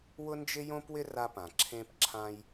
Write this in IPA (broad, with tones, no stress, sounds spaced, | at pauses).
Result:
w ʊ˥ n d͡ʒ ɪ˥ j õ˥ p w ɪ˥ r a˦ p ã˩ ǁʰ ẽ˦ p ǁʰ ã˦ j